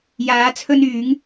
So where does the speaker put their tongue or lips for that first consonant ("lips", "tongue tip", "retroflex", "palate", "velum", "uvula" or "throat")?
palate